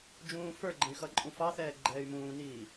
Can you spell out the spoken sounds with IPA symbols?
d͡ʒũːfə˞ɡ͡ǃə̃y̯ xʌǃʼũfɑθɛː ɡ͡ǃɛːy̯mũːniː

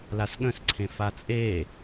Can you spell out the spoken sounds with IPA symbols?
lasɠə̃s ǀʰẽfat͡sʼe

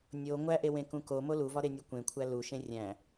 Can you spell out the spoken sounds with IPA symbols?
nʲo ŋʷæʔewẽkũ komo luvɒɾenʲu kʷẽkʷʰæ luʃẽ rʲæ̃

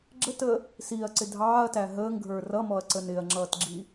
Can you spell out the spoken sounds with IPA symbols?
ɡ͡ǁətəː | siːɐ̯ǀɪ dʱɑːɐ̯tæ ɦəːŋɡʱə˞ rʌmɔɐ̯ǀən ɪɐ̯ŋ͡ǁʌːtɡ͡ǁi

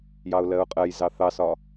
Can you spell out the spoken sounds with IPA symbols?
jɑʊ̯lɜʊ̯qʼɜjzɑ θɑsɒ

